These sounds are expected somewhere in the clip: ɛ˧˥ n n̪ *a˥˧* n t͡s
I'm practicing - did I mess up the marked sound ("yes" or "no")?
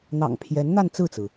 no